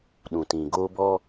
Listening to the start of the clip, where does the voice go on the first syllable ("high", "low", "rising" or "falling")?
low